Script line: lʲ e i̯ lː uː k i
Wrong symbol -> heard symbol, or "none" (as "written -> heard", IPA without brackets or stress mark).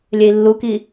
uː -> u